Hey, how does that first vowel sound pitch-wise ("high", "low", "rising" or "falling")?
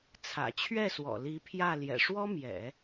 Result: low